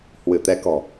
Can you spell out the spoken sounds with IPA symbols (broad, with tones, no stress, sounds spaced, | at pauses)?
h w ɨ˧˩ t̪ ɛ˨˦ k ɔ̤˨˩